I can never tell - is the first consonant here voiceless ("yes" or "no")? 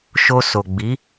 yes